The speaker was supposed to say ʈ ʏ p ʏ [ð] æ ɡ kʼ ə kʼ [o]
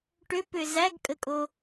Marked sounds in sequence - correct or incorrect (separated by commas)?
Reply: incorrect, correct